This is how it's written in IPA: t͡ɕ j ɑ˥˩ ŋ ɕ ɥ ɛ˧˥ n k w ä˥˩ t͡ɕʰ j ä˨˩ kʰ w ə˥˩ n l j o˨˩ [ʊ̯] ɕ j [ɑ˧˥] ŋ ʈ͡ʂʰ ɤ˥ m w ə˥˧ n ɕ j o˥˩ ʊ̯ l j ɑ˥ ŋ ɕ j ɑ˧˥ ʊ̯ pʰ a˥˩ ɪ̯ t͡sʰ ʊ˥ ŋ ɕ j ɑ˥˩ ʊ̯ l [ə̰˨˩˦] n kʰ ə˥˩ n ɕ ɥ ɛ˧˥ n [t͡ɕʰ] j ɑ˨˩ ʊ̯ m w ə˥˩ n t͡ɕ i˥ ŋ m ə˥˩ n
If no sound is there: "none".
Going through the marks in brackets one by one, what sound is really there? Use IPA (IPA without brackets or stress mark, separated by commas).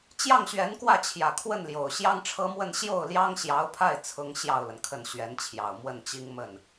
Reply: ʊ̯, ɑ˥, ə˩, t͡ɕʰ